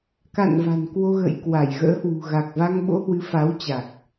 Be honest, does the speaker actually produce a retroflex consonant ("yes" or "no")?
no